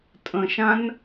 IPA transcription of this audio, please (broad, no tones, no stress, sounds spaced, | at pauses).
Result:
tʼ ə̃ ʃ ã n